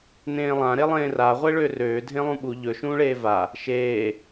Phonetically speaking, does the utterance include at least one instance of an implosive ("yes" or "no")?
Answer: yes